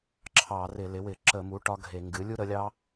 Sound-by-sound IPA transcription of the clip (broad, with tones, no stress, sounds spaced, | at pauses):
ǁʰ ɑ˧˩˧ r ɪ˧˩˧ l ɪ˩˥ w ɪ˧˩˧ ǁ ə˧˩˧ m u˩˥ ʈ ɒ˦˥ ɡʱ e˧˩˧ ŋ ɡ ɨ˩˥ lʲ u˦˥ ɾ ə˩˥ lʲ ɑ˦˥